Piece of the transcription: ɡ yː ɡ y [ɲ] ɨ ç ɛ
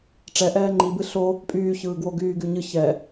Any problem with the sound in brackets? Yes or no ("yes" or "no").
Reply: no